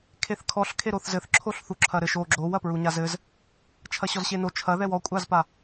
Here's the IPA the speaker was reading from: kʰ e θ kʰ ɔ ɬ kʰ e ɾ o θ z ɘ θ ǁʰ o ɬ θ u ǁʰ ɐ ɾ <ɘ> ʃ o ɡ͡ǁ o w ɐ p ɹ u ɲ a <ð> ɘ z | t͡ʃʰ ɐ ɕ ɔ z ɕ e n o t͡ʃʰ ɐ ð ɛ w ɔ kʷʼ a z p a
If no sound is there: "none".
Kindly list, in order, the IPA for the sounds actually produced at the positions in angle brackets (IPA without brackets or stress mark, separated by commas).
ɘ, z